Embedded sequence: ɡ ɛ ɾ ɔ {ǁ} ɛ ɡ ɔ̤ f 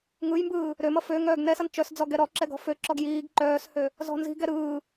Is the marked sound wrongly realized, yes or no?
no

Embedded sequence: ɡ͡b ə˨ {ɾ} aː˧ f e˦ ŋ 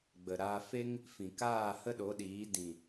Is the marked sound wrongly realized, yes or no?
no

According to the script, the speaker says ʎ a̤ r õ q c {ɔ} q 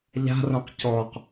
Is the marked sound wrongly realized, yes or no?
no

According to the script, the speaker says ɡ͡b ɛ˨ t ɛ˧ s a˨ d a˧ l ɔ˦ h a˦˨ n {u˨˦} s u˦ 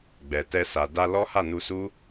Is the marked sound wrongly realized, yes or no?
yes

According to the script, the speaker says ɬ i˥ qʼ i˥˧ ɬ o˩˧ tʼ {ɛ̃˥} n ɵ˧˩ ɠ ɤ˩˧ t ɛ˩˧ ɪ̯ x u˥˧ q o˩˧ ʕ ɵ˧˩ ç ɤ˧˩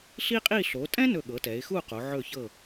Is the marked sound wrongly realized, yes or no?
no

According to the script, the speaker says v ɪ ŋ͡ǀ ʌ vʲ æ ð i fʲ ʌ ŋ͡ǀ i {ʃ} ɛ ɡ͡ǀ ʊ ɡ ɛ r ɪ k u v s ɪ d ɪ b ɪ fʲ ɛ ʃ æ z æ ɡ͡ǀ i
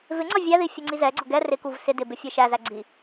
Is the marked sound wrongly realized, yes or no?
yes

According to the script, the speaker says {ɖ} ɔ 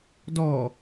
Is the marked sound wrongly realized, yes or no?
yes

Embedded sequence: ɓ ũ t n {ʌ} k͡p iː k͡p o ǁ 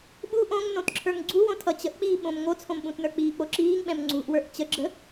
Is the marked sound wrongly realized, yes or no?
yes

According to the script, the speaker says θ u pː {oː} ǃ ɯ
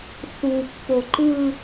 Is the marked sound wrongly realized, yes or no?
yes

